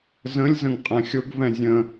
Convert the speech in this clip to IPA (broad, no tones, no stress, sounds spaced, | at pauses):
z ə̃ lʲ z ə̃ ŋ qʼ ɛ̃ xʲ ʊ ɡ v ɛ̃ zʲ ə̃